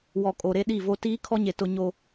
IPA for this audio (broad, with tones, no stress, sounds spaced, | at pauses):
w ɔ˨ kʼ o˨ ɾ e˦ ɗ i˦˨ v o˦ t iː˦ kʰ ɔ˦ ɲ e˨ t ʊ˦ ɲ o˦